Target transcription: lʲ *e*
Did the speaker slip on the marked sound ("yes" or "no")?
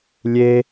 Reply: no